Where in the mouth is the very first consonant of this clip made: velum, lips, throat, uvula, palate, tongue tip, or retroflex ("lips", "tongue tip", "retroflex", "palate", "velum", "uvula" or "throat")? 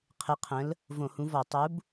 uvula